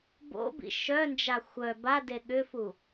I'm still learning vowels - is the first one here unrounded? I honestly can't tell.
no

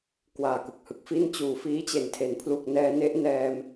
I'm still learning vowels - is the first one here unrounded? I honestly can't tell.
yes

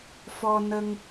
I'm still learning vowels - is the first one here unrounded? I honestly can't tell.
no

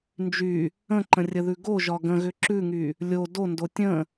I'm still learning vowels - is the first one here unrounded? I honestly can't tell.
no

